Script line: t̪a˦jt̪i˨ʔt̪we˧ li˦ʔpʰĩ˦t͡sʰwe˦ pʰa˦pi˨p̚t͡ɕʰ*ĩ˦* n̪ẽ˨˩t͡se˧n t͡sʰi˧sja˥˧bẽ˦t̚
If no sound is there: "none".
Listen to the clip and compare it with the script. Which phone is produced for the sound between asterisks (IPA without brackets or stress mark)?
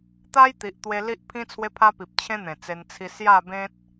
ẽ˦